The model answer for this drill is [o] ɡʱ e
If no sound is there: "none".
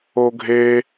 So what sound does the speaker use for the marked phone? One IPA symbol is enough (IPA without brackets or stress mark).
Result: o